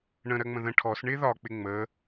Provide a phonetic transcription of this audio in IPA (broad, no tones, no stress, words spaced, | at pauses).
ɳə̃ɾɜŋ͡mə̃ ðə̃ ʈʰɔs ɳɪ ðɒk͡pɪ ŋ͡mə